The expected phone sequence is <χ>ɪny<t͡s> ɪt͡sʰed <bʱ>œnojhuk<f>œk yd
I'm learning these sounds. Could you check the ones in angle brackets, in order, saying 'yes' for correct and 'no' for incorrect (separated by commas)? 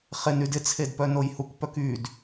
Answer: yes, no, no, no